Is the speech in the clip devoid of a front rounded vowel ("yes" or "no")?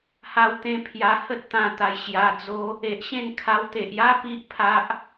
yes